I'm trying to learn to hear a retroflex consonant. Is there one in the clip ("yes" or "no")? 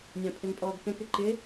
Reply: no